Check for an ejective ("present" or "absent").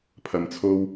absent